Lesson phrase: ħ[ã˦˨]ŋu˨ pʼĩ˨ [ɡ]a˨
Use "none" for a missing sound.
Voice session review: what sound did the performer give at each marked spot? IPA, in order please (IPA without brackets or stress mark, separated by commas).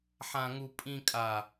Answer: ã˨, kʼ